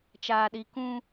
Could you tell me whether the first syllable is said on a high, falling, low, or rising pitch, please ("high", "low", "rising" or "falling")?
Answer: high